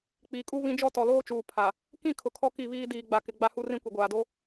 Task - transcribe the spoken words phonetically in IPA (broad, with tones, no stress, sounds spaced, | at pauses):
k͡p iː˨ kʼ u˦ β ĩ˦ d͡ʒ ɔ˦ t ɔ˨ l oː˦ t͡ʃ uː˨ pʰ a˨ | k ĩ˦˨ kʰ ʊ˨ kʰ ɔ˦ k i˦˨ β iː˦ d iː˨ ɡ͡b a˨ k ɪ˨ ɡ͡b a˦ h u˦ r ĩ˦ kʷ i˨ ɡʷ aː˨ d o˦